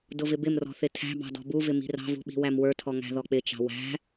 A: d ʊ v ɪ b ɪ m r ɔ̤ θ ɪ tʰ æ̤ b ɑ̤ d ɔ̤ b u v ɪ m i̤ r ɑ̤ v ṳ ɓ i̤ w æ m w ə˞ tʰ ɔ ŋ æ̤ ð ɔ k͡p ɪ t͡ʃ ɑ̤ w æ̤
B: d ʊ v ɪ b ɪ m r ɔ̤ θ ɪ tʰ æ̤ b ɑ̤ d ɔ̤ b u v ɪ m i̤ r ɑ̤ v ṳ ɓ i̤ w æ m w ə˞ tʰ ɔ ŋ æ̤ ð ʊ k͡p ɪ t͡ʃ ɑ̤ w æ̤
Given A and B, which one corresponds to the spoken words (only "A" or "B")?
A